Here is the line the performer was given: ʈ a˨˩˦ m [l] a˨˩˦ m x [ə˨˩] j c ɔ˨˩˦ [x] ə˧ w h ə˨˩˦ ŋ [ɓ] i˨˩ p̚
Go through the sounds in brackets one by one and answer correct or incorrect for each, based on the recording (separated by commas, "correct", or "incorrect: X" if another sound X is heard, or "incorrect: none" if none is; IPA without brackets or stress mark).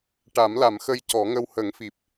correct, incorrect: ə˧, incorrect: ŋ, incorrect: f